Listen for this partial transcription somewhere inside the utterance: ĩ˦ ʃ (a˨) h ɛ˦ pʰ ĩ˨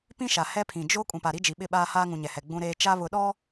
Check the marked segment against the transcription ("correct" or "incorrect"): correct